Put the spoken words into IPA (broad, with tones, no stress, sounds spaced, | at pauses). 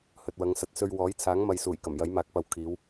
h ɵ˨ t̚ w ɐ˨˧ ŋ s ɐ˨ t̚ s ɵ˧ ɥ w ɔː˨˥ j t͡sʰ aː˨˥ ŋ m ɐ˨ j s uː˨˩ j k ɐ˨˩ m j ɐ˨˥ j m aː˨˥ k̚ p ɐ˨ w kʰ iː˨˧ w